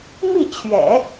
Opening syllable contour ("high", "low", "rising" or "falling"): falling